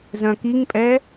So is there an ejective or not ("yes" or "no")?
yes